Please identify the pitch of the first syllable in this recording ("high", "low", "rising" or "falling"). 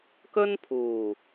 high